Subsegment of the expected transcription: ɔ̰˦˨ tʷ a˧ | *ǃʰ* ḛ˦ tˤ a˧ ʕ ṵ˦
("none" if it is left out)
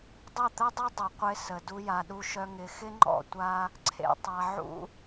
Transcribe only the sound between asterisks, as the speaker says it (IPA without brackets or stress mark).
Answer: ǀʰ